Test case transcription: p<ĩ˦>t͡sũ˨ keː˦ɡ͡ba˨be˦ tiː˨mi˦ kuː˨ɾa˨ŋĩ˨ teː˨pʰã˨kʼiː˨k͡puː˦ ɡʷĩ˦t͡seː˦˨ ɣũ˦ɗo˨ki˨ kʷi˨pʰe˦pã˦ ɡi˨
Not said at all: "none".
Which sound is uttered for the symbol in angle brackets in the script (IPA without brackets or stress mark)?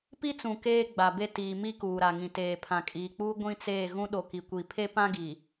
i˦